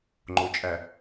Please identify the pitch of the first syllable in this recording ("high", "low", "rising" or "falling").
low